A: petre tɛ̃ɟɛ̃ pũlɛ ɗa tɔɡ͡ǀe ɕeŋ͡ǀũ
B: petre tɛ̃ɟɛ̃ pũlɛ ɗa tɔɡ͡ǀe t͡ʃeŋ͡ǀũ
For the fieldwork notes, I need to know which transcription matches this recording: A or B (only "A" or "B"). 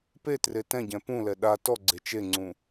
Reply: B